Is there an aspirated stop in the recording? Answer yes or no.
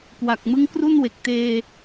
no